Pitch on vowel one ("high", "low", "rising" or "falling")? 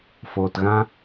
low